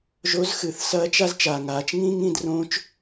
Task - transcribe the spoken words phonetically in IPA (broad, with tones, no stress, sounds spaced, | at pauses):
ʒ o˧˥ z x ɨ˩˧ θ s ɐː˧˥ t͡ʃ a˥ z t͡ʃ aː˩ ŋ aː˩˧ t͡ʃ ŋ ĩː˥ ŋ ĩ˧ d r õː˧˥ t͡ʃ